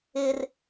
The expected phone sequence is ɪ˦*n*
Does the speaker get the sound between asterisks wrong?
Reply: yes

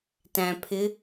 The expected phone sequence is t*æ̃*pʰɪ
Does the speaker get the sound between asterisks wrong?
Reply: no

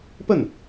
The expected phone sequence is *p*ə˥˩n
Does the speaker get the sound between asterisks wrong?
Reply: no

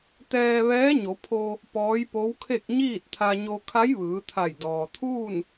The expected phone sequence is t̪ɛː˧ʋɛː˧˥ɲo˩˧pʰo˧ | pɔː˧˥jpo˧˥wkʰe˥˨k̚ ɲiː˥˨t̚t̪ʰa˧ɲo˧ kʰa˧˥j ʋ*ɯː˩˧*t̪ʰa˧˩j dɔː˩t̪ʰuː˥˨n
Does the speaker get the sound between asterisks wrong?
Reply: no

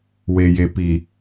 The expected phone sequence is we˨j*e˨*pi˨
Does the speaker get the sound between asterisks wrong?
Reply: no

